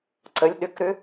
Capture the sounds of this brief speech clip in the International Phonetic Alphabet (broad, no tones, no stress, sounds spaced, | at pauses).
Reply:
ǀ ə lʲ ɗ ʏ k ɾ ʏ